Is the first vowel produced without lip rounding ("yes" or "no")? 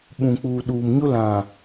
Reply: no